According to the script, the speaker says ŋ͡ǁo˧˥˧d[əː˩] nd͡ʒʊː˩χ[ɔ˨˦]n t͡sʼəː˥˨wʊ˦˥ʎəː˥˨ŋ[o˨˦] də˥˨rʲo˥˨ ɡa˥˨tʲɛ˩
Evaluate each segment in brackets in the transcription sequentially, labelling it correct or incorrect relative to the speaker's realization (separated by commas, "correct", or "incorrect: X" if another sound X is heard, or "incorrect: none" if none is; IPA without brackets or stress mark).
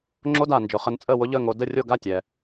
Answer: incorrect: aː˩, incorrect: ə˨˦, correct